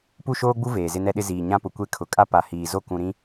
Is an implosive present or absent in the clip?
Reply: present